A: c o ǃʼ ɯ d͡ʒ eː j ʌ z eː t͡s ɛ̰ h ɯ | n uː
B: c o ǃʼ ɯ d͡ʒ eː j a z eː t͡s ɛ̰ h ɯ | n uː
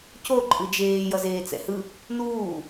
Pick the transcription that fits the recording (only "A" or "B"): A